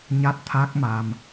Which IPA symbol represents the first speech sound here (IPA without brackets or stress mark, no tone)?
ɲ